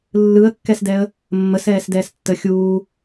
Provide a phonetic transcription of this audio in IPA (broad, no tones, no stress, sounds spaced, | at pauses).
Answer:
lː ɯ ə̯ kː ɛ s d ɛ ə̯ | mː ə s ɛː s d ɛː s tː əː xʲ uː